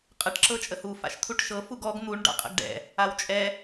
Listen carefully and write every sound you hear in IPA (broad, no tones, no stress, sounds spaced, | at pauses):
qʼ ə ʈ ǁ ɤ t͡ʃʼ ə h u f a̰ ʃ t̪ʰ u ʈ ʃ ɤ f u ɡ ɔ ɡ n̪ u ɳ ɖ a̰ qʼ ə̰ ɡ ɖ ɛ̰ | a w t͡ʃʼ ɛ